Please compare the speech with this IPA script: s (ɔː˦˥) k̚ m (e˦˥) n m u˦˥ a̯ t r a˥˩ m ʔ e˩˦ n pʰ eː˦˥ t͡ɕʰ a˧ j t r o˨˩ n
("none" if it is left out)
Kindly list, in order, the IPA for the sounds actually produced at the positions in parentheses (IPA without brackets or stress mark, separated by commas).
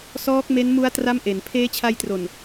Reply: ɔː˦˥, e˦˥